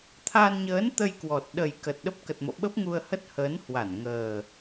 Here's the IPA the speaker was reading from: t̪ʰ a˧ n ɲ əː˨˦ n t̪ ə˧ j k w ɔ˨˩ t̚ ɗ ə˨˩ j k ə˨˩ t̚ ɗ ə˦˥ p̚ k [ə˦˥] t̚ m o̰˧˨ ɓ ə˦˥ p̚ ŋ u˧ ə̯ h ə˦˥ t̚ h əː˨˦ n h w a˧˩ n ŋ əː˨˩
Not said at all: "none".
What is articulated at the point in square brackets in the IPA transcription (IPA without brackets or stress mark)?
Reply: ə˨˩